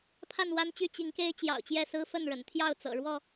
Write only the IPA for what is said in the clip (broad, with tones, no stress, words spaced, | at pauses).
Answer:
pʰa˥˨nwa˦nt͡ɕy˥˨ t͡ɕi˨˦ŋke˦ɪ̯ t͡ɕjɑ̰˨˩ʊ̯t͡ɕjɛ˥˨ sɹ̩˦fə˥˨nɻə̰˨˩nt̪ʰjɑ˥˨ʊ̯ t͡sɤ̰˨˩ɻwɔ˥˨